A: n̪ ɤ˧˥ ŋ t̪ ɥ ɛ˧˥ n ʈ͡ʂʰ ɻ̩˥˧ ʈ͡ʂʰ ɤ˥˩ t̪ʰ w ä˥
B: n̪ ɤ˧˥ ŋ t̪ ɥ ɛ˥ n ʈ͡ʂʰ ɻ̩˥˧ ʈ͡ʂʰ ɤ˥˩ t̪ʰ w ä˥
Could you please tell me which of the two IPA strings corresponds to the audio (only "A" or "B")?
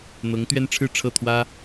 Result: B